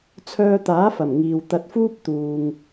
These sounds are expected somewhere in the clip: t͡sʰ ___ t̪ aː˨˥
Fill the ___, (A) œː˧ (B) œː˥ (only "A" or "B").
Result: A